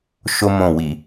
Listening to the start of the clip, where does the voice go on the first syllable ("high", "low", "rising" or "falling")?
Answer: high